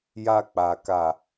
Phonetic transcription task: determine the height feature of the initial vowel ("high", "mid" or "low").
low